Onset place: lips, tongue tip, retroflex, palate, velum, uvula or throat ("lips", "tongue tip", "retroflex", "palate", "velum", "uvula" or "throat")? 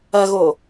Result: velum